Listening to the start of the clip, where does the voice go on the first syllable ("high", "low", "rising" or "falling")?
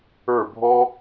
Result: falling